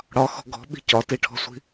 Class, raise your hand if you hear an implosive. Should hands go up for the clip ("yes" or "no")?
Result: yes